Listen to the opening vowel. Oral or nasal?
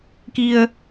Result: oral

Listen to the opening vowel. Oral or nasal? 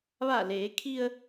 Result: oral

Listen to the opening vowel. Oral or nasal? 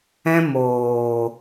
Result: nasal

